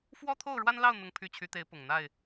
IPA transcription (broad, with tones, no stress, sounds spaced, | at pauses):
f w ɔ˦ t̪ʰ o˥˨ ʊ̯ ɻ w a˦ n l ɑ˥˨ ʊ̯ n̪ ʊ˨˦ ŋ pʰ y˨˦ t͡ɕʰ y˨˦ t̪ e˨˦ ɪ̯ p ʊ˨˩ ŋ n̪ a˥˨ ɪ̯